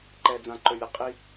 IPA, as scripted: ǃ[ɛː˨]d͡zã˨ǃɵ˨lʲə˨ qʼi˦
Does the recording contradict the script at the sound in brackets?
no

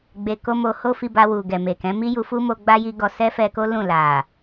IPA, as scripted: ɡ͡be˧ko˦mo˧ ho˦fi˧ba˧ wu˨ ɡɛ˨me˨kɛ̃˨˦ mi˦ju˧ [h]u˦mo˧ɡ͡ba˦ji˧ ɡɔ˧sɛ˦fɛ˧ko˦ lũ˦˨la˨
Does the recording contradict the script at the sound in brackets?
yes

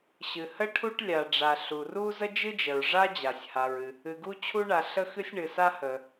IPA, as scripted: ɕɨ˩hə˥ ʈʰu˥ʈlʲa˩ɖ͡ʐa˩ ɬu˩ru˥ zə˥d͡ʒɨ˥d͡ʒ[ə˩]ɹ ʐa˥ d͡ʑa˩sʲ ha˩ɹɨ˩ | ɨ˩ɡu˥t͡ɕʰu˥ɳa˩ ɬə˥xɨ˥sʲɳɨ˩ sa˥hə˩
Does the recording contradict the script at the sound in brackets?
no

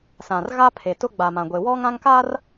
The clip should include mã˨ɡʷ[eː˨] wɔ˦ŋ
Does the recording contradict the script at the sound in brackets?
yes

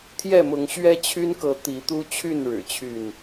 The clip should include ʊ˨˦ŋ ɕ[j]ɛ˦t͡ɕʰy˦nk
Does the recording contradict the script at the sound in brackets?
yes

